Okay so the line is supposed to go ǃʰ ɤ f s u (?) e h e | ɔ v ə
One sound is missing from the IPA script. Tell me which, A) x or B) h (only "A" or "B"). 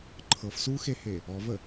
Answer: A